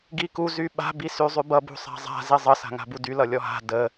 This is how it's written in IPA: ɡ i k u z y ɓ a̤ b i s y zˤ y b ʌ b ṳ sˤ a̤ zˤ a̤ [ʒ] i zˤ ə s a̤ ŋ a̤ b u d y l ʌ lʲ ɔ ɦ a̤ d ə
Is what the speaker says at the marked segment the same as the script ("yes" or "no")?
no